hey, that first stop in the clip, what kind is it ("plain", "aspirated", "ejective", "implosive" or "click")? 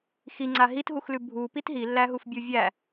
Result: click